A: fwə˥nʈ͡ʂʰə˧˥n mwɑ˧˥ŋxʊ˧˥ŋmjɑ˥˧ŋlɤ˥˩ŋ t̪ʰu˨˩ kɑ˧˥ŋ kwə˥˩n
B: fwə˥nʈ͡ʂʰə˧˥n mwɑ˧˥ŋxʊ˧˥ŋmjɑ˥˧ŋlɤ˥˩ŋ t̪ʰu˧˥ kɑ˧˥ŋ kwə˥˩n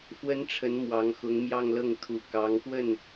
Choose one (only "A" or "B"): A